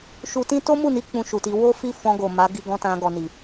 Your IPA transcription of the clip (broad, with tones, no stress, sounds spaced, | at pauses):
ʃ u˧ t ĩ˦ t o˦ m u˦˨ n i˧ k͡p ũ˧ ʃ u˨ t i˧ w o˦ f i˦˨ f ɔ̃˧ ɡ o˨ m a˨˦ ɡ i˧ ɡ ɔ̃˧ t ã˧ ɡ ɔ˨ n i˨